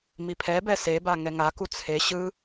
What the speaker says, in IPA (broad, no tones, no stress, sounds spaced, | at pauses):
m i pʰ ɛ b ɛ s e b a ŋ ɛ ŋ a k u t͡sʰ e ɕ ɯ